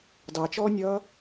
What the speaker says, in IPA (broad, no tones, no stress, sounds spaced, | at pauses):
d ɑ t͡ʃ ɔː nʲ ʌː